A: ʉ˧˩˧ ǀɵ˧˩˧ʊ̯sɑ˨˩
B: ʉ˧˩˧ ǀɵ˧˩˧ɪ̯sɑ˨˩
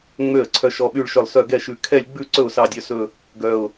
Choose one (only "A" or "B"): A